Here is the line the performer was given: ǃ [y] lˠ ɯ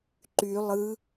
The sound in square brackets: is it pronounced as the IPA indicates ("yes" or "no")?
yes